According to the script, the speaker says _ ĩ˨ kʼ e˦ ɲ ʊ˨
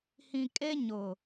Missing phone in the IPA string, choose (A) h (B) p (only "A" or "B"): A